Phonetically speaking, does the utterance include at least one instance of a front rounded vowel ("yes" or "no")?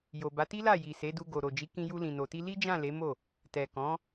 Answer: no